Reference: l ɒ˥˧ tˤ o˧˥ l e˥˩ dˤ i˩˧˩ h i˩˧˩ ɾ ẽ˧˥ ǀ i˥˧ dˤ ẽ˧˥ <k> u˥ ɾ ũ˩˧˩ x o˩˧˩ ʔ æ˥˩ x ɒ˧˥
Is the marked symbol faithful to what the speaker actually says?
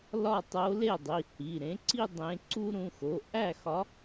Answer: no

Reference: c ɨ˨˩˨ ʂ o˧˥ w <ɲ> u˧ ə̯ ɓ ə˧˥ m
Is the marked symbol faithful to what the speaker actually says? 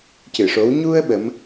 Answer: yes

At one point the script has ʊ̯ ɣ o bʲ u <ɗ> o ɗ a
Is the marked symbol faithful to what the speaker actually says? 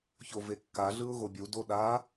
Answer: no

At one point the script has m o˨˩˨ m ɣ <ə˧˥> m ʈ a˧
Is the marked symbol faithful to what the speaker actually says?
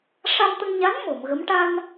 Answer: yes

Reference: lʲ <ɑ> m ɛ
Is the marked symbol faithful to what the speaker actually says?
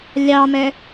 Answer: yes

